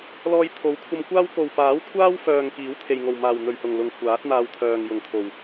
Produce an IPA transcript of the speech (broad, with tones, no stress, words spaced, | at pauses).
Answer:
lɔː˧jt̪ʰo˨˥wkʷʰɐ˧mkʷaː˥w ko˨w paː˨˥wkʷʰaː˥wfœː˨ŋ kiː˨˥wt̪ʰe˨jŋo˨˩wmaː˨˩w n̪ɵ˨ɥhʊ˨˩ŋ lʊ˨ŋkʷʰaː˨˥t̚n̪aː˧wt̪ʰœː˨ŋ jʊ˨˩ŋt̪ʰo˨˩w